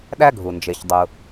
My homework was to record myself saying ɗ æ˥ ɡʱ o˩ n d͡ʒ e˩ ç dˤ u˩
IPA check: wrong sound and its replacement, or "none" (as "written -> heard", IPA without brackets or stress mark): o˩ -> u˩